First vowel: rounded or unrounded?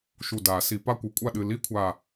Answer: rounded